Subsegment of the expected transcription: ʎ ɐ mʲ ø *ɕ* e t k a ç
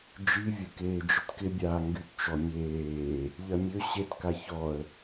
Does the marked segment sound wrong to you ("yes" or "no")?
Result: no